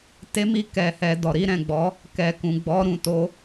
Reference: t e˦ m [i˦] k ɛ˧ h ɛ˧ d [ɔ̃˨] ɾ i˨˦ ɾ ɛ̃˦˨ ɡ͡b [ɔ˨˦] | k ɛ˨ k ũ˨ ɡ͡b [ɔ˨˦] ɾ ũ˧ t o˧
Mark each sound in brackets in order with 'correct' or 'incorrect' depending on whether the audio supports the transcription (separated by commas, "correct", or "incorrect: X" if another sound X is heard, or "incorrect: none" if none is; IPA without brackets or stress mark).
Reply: correct, incorrect: ɔ˨, correct, correct